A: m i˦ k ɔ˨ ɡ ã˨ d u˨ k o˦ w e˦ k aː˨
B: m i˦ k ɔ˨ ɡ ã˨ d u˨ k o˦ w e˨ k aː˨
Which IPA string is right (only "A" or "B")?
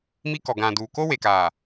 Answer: B